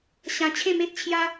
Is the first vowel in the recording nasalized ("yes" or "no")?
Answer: yes